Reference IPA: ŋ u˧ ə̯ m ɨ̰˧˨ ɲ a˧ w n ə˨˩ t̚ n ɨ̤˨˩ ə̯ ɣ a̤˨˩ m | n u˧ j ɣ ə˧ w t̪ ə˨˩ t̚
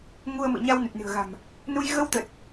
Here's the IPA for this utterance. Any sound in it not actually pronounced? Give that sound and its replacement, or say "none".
none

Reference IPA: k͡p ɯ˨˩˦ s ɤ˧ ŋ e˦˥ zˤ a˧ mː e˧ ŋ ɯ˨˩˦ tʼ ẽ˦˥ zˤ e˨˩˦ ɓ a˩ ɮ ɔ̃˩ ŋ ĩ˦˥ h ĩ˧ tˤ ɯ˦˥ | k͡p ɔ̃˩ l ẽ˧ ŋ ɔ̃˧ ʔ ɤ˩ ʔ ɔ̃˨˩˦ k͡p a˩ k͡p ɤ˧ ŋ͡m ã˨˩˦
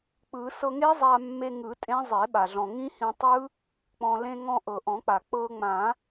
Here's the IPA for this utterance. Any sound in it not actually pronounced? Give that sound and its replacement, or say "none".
none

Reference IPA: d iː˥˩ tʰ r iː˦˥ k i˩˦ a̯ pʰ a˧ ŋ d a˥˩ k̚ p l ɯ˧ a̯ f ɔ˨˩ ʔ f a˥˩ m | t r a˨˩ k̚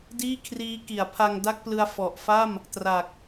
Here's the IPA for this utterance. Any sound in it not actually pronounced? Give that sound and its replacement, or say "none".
tʰ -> kʰ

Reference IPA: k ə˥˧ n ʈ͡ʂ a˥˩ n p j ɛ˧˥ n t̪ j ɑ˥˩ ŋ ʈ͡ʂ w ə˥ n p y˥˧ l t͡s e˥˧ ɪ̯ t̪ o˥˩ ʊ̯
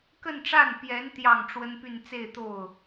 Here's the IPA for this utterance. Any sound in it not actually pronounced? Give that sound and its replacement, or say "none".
l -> n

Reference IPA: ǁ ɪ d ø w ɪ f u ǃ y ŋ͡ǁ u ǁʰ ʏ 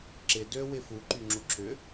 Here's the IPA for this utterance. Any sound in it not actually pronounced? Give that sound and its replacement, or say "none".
none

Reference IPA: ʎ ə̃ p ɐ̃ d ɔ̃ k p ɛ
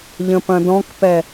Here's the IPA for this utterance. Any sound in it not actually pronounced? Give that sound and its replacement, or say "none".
none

